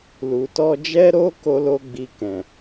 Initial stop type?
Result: plain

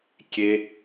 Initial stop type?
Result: plain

